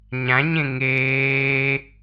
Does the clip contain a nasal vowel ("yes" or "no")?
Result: yes